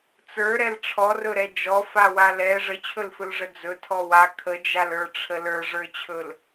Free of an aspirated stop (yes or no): no